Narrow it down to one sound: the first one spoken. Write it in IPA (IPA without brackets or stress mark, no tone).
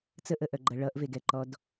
t͡s